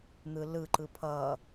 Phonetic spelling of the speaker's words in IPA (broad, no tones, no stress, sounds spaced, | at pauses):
n̪ ɯ l ɯ ǃ ɯ pʰ ʌ